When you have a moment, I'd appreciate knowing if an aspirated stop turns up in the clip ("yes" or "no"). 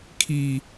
yes